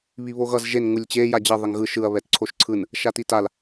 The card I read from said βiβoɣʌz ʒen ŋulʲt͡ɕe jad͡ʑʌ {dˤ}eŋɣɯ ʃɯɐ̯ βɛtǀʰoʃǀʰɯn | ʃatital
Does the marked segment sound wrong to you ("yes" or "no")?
yes